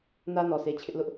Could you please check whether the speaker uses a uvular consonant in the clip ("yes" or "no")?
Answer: no